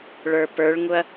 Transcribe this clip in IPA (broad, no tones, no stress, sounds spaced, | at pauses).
ɭ ə˞ p ə˞ ɭ ŋ ʊ ɐ̯